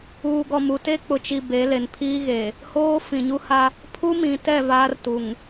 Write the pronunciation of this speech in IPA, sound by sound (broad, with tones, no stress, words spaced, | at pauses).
uː˨ɡɔ˨mu˨te˦ k͡pʊ˨t͡ʃi˨ be˨˦ le˨n pʰiː˦ ɣe˨ | hoː˦ fĩ˨ɲu˦ha˦ | pʰu˦mĩ˨tɛ˦˨ vaː˦rtu˨ŋ